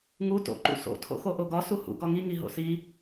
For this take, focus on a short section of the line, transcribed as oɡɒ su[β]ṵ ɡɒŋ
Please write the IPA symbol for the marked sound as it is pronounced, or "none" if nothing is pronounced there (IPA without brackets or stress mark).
h